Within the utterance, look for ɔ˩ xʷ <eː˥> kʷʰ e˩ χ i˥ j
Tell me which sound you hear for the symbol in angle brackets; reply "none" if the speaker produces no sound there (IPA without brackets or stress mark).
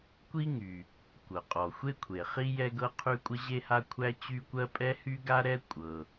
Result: e˥